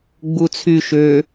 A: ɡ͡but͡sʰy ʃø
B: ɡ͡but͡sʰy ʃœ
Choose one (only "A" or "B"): A